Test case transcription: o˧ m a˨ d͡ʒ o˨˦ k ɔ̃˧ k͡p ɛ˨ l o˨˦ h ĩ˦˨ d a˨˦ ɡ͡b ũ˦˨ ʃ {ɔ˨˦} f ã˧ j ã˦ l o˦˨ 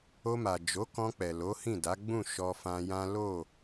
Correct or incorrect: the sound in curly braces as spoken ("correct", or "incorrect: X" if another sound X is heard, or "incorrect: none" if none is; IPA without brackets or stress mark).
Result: incorrect: ɔ˧